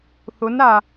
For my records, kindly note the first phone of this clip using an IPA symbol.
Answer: θ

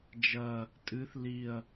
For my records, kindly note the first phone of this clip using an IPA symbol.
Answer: d͡ʒ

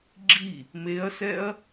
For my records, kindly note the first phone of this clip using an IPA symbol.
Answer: ɡ͡ǁ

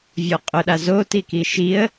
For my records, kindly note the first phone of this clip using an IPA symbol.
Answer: vʲ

